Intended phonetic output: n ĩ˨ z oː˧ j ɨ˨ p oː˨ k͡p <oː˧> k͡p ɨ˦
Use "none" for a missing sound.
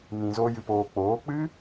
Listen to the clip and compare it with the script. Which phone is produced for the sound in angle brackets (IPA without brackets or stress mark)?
oː˨˦